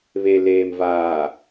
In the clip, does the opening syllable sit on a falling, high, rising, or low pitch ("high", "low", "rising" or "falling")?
low